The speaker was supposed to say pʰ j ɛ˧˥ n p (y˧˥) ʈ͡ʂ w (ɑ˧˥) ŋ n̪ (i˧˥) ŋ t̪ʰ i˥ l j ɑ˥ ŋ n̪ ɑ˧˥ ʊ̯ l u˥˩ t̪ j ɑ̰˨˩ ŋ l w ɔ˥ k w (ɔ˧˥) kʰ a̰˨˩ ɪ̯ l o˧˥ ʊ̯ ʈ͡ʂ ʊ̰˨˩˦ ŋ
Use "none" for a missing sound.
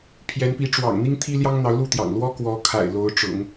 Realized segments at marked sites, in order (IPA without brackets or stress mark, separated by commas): i˧˥, ɑ̰˨˩, i˥, ɔ˧˥